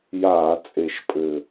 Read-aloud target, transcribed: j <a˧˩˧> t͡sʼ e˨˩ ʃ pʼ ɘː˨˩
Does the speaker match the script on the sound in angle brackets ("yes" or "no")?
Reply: no